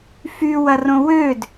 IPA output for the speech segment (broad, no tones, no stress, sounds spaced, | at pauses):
f y w ɐ r õ w ø d